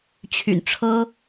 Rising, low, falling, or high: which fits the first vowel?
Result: low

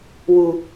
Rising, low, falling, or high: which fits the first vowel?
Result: low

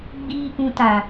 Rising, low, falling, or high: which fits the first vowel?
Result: low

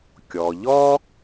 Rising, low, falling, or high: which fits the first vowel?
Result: low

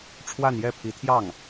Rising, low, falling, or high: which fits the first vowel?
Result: falling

